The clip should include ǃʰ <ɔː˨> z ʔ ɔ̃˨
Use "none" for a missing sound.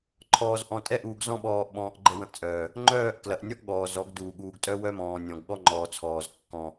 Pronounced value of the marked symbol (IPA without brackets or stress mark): ɔː˨